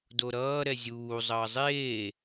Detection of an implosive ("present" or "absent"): absent